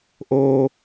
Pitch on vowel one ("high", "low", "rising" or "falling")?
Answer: high